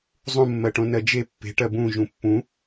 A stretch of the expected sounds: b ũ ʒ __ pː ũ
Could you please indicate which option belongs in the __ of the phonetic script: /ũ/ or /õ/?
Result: ũ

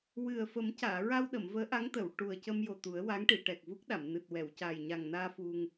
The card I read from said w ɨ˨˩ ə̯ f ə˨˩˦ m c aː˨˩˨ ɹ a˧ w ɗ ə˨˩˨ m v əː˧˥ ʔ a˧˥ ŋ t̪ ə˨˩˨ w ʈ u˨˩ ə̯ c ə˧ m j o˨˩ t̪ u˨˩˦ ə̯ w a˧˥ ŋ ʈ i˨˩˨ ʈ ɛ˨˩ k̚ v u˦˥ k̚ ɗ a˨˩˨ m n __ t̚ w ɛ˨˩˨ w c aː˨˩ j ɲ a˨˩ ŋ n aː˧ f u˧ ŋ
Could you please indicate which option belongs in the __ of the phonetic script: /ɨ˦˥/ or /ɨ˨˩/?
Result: ɨ˨˩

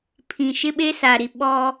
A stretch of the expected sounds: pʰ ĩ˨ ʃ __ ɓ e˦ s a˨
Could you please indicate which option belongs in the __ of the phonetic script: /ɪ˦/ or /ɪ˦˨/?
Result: ɪ˦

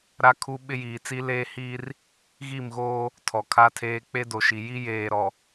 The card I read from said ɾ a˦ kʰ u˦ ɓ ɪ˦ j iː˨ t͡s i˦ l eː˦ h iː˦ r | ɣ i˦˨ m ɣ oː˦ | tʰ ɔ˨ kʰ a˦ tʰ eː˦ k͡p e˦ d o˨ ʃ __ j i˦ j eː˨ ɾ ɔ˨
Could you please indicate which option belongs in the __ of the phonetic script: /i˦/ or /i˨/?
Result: i˨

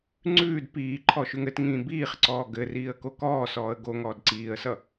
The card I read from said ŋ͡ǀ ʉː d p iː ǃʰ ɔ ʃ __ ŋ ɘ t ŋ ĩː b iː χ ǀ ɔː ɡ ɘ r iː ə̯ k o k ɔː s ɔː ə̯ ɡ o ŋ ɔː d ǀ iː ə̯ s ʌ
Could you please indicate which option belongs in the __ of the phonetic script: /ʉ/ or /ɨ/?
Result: ʉ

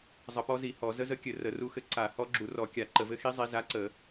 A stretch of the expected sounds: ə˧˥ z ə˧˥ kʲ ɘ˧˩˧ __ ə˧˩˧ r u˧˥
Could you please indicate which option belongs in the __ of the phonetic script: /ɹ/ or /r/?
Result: r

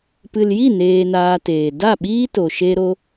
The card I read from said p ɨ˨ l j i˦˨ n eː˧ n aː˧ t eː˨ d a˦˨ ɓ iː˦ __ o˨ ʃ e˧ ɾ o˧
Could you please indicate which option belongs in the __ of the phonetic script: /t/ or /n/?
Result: t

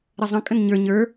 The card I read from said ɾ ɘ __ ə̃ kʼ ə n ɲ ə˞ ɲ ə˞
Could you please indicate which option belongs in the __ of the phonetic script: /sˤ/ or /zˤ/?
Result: zˤ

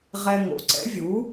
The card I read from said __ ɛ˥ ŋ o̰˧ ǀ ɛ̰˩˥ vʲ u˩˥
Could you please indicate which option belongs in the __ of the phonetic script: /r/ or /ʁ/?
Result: ʁ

